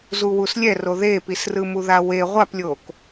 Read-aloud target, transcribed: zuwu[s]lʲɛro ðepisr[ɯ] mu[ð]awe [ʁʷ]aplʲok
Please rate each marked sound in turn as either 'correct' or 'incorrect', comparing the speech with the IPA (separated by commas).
correct, correct, correct, correct